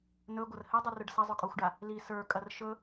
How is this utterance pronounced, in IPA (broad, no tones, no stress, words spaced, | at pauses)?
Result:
nɵɡʷɐr hɘdˤɵrɵɖ sɐzˤɵkʼoxʷɖa | li sə˞kʼɐr ʃɵ